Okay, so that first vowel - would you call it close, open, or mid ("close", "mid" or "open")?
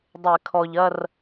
mid